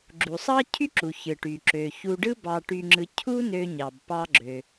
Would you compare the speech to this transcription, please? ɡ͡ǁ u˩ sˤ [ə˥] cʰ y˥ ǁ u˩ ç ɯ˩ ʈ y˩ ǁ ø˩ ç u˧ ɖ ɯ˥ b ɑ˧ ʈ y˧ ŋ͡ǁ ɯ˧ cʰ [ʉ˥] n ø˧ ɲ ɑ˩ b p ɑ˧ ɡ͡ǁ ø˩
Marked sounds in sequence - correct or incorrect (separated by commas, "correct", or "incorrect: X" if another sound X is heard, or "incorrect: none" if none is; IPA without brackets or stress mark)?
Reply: incorrect: ɑ˥, incorrect: u˥